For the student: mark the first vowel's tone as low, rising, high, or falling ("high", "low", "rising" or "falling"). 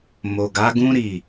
low